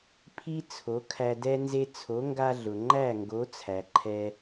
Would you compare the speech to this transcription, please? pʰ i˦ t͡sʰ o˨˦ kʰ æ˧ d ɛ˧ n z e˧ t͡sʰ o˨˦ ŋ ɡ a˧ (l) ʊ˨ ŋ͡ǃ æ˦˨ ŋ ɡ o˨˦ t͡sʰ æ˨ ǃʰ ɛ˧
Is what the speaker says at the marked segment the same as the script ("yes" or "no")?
no